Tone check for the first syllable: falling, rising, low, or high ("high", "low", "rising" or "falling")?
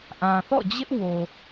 low